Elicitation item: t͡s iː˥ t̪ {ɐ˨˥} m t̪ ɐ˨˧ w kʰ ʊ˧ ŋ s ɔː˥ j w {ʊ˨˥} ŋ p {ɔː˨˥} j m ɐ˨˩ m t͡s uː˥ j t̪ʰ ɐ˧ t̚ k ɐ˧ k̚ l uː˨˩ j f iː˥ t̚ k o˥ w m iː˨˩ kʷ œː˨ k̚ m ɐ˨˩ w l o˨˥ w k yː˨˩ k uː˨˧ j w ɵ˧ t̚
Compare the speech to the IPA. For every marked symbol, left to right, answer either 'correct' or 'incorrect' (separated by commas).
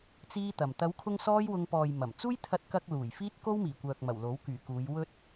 incorrect, incorrect, incorrect